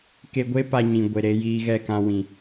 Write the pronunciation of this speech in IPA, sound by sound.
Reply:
ke˧ɡʷe˦ pa˧ɲĩ˨ɡʷe˨ ɾe˧jiː˧ ɣɛ˦˨kã˧wĩ˨

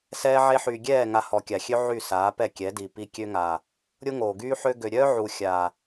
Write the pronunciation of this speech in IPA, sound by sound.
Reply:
sɛː˧ʕe˧ħyː˨ɡʲɛː˦˨ ŋa˧hɔ˨kʲa˨xʲø˦ ʕy˦˨saː˨˦pɛ˦˨ kʲɛ˨˦di˨ pi˧kʲø˦ŋaː˨ | ɾʲo˦ŋoː˨ɡyː˦ħø˦ ɡø˨ɾʲœː˦ʕu˨ xʲaː˨

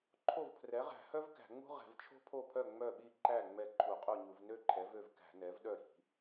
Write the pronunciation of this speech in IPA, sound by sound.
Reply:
ǃʰo˥˩vpʰrɛ˩˥ʁæ̤˧˩˧hœ˥v kæ̤˧˩˧ŋ͡mṳ˥ʁɛ̤˧˩˧vt͡ʃʰo̤˥ pʰo˥˩pʰœ˥˩ ŋ͡mœ˥˩ɓi˥˩ ǃæ˥˩ ŋ͡mɛ˥˩ǃʰu˧˩˧qʼu˥˩ɲu˧˩˧v nø˥ǃʰɛ˩˥vø˥˩v kæ̤˧˩˧nɛ˩˥vɗœ˥˩ɾi̤˧˩˧

